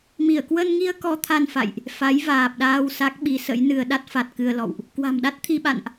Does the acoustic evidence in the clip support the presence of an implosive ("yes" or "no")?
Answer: yes